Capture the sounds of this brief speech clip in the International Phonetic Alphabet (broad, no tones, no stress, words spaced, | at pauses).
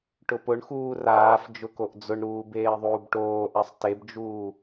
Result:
ʈʊpʊɳxuː raːf d͡ʒʊkoʔd͡zʊɳɾuː beːðˤuːbʈoːʔasˤ tebd͡ʒuː